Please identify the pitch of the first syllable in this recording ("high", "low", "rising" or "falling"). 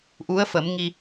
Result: rising